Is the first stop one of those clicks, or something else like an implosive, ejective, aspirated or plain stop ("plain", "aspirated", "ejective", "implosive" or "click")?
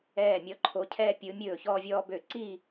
click